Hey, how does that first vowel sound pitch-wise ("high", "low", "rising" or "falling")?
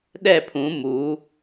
falling